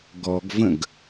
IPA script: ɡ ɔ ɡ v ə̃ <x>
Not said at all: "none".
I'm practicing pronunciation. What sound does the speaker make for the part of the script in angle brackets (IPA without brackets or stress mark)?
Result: ɡ